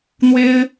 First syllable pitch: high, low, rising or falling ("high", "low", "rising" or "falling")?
high